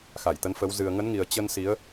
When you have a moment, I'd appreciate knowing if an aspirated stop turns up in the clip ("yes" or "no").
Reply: no